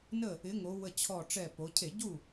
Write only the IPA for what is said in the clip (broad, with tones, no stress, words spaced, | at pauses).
nə˥˩ | ɪ˨˥ŋo˩˧wə˧˩ t͡ɕʰɔ˧˩ʈ͡ʂɛ˧˩po˩˧ cʰe˧˩˧ɟu˥˩